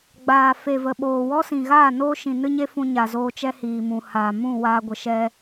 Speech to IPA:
ɡ͡baː˨ fe˨və˨ɓoː˨wɔ˦ sĩ˨ɣaː˦˨ noː˦ʃĩ˨nɨ˦ɲe˦ fũ˧ɲa˨zoː˧ t͡ʃɛ˦hiː˨mũ˨ haː˨mũ˦˨ waː˧ɡʷə˨ʃɛ˧

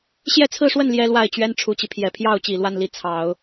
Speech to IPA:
ɕjɛ˥˧t͡sʰɹ̩˥˧ʂwə˥˩n ljɛ˥lwa˥˩ɪ̯t͡ɕɥɛ˥n ʈ͡ʂʰu˨˩t͡ɕi˦ pʰjɛ˨˩pʰjɑ˥˩ʊ̯t͡ɕi˨˩ lwa˥˩nli˧˥ t͡sʰɑ˨˩˦ʊ̯

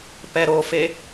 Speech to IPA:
pɛɾofe

